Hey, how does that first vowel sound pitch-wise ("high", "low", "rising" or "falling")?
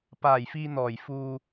low